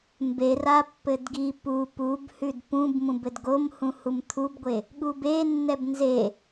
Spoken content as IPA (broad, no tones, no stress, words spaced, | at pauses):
mbera pːɘdɡi pu pubhʉd pũb mũbɘdɡom hũhumt̪ʰubɡʷe | ɠube nːɛbnze